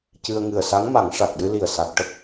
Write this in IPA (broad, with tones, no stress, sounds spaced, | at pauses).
c ɨ˧ ə̯ ŋ ɨ˨˩ ə̯ s a˧˥ ŋ m a˨˩˦ ŋ ʂ a˨˩ k̚ ɗ ɨ˧ l i˨˩ ə̯ s a˨˩ k̚ ʈ ə˦˥ k̚